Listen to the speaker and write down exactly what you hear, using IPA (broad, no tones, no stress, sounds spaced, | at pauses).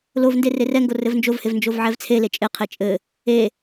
l o v n d e r e r ɛ ŋ ɡ o r ɘ v n d͡ʒ o v h e v n d͡ʒ o v ʕ ɛ v t͡sʰ e l e t͡ʃʼ e qʰ e t͡ʃʼ ɘ | e